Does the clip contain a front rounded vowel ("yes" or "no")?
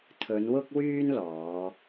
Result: yes